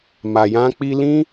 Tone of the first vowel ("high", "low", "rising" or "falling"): low